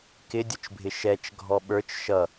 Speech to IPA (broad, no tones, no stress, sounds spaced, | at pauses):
k ɪ dʲ ʊ t͡ʃ bʱ ɪ ʃ ɛ t͡ʃ ɡʱ ɔ ɓ ə˞ t͡ʃ ʃ ʌ